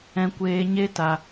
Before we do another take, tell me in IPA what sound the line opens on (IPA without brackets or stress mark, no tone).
ɛ̃